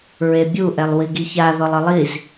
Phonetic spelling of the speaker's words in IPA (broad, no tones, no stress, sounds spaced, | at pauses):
ɹ e bʲ u ʔ ɛ lˠ w i ɡ i ç a ð ɔ lˠ ɤ lˠ i z